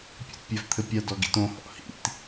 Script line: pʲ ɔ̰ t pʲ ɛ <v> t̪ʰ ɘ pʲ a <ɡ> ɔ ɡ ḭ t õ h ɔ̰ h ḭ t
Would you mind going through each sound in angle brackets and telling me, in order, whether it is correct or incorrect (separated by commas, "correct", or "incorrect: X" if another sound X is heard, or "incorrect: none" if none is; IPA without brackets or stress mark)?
correct, incorrect: d